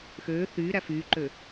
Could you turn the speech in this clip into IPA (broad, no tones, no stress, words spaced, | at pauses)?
xøː θyːɾæ fyːǃø